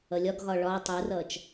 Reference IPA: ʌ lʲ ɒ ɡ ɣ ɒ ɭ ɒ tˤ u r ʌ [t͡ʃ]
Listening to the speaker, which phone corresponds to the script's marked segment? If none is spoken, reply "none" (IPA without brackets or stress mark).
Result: t͡ʃ